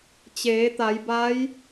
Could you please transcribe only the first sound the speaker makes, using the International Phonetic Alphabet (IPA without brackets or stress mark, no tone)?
t͡ɕ